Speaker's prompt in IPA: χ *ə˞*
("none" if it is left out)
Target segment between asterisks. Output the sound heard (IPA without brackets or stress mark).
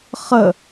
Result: ə